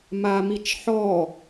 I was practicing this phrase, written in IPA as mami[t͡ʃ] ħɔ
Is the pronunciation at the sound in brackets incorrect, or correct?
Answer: correct